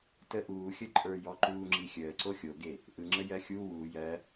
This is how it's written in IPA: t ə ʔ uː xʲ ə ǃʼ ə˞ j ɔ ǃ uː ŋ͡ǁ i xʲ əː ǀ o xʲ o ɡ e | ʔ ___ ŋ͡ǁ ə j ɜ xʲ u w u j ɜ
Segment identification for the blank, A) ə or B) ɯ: B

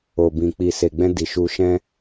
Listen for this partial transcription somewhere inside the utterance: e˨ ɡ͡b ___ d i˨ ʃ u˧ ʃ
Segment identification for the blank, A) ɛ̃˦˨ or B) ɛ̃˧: B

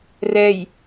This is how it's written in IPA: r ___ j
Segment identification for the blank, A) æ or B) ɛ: B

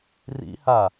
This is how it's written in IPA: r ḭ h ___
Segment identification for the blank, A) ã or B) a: B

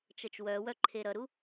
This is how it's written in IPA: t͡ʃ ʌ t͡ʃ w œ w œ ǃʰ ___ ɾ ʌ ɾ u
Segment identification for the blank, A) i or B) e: B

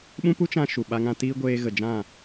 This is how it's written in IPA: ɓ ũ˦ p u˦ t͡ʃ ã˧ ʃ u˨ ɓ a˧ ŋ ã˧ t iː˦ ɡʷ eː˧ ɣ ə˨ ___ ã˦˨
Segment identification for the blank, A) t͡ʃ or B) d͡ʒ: B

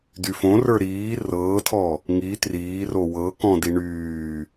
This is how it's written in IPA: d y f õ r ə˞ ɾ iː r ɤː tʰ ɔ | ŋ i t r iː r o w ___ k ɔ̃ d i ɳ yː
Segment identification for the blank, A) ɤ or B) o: A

